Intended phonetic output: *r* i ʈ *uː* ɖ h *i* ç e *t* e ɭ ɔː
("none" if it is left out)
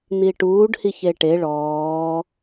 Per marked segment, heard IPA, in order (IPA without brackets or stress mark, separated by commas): n̪, uː, i, ʈ